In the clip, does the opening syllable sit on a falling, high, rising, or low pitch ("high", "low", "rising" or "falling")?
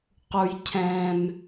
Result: low